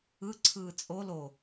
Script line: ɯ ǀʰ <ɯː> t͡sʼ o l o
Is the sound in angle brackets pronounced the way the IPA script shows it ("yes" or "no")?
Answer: yes